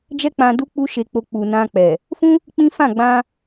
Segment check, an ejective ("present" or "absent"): absent